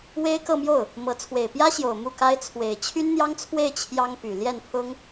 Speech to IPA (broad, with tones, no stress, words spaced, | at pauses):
we˥ɪ̯kɤ˥˧mjo˥˩ʊ̯ | mɤ˧˥ t͡sʰwe˨˩ɪ̯pjä˥ɕjo˨˩ʊ̯ mu˥˩ka˥ɪ̯ t͡sʰwe˨˩ɪ̯ t͡ɕʰy˥nn̪jɑ˥ŋt͡sʰwe˥˩ɪ̯ t͡ɕʰjɑ˥ŋpy˨˩ ljɛ˥˩npʰʊ˥ŋ